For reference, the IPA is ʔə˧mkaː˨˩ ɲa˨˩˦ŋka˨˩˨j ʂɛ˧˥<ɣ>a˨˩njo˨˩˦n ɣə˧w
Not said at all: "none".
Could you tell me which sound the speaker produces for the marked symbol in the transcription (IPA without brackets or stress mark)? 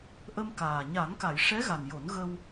ɣ